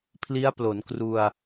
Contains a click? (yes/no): no